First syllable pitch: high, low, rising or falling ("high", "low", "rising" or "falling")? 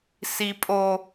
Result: low